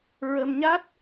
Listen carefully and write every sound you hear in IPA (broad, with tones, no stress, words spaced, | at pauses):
ɹə˧mɲa˦˥t̚